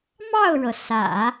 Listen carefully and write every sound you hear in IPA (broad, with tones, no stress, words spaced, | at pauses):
mɑ˥˩ʊ̯ɻɤ˩ sä̰˨˩˦